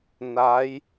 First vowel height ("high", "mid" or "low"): low